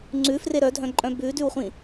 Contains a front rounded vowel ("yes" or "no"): yes